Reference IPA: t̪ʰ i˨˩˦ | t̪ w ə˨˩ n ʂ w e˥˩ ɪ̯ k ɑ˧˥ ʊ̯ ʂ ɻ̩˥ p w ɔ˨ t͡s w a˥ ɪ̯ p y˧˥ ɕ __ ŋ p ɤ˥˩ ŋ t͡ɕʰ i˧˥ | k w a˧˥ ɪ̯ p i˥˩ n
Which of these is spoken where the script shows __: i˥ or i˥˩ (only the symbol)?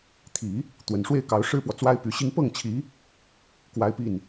i˥